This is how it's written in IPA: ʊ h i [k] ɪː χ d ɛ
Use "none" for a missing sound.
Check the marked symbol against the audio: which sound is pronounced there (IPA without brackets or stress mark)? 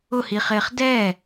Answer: χ